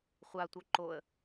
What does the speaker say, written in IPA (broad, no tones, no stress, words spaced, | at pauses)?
χʷatʷœ ǃoə̯